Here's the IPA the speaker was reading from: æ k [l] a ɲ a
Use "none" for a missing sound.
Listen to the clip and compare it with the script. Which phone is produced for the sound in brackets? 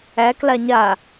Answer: l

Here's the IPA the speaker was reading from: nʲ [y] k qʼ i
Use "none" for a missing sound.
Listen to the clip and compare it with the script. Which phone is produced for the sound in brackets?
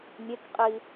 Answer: e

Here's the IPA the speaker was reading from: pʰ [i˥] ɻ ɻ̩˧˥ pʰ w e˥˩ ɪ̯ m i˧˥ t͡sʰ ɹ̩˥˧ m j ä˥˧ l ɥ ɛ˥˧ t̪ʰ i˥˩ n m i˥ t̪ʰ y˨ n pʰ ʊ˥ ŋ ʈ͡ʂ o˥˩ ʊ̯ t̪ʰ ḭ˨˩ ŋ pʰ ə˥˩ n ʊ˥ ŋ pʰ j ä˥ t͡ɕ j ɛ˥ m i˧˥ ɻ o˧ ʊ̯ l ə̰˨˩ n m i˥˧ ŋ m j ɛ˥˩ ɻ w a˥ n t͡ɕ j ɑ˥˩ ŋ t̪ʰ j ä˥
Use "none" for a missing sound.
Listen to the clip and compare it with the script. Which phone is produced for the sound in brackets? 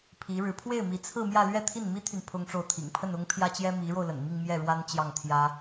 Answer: i˧˥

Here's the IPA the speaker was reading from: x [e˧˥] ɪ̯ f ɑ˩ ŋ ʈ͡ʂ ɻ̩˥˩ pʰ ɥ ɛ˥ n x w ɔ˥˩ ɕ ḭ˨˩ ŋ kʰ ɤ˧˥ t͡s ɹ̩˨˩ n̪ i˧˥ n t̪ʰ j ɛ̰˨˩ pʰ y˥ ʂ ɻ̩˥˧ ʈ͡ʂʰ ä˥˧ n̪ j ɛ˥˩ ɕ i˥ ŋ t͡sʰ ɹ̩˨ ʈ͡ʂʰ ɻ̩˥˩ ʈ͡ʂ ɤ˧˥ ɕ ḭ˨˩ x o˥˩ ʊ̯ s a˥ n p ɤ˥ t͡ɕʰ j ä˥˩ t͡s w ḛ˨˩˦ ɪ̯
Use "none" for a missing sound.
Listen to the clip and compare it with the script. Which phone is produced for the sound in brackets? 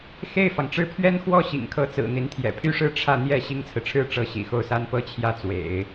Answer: e˥˩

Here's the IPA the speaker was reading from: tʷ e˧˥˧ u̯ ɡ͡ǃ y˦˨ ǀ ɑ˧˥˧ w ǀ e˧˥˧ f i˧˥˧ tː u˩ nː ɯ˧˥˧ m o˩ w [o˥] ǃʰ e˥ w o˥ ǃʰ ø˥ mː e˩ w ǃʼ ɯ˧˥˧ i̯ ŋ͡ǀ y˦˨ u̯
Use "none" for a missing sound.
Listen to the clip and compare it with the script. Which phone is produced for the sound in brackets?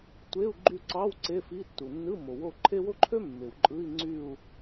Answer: o˦˨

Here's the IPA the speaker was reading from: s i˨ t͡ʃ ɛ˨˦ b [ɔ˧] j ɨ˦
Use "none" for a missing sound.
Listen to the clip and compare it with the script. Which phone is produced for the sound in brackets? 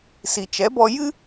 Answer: ɔ˧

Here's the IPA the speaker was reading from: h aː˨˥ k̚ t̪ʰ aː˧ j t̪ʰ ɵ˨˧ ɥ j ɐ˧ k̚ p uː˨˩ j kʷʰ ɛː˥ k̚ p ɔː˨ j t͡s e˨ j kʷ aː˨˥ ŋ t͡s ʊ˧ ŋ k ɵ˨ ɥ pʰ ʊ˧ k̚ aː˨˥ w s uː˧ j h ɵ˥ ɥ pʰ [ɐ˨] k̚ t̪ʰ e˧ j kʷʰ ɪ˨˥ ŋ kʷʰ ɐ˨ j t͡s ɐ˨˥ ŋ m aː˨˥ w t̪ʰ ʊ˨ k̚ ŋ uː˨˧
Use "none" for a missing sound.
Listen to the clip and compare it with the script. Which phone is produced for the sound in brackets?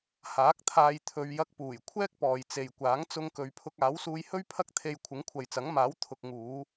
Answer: ɐ˥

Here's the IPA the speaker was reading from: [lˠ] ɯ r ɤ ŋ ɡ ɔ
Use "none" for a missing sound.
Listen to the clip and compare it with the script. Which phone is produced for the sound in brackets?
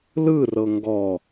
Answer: l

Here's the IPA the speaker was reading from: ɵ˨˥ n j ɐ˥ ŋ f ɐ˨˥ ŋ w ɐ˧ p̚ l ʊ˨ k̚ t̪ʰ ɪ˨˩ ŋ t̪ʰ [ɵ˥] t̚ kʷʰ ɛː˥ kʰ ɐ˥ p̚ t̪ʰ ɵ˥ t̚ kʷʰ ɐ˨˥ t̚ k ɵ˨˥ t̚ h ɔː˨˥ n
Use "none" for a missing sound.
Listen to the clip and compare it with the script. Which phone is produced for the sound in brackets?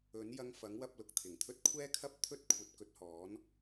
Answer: ɵ˥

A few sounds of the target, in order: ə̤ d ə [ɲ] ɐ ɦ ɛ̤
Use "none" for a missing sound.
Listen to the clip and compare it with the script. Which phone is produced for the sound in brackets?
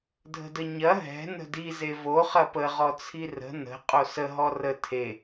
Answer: ɲ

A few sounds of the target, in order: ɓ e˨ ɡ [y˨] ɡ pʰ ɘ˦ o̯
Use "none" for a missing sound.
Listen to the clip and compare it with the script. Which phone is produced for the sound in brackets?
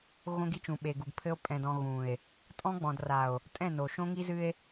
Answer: u˨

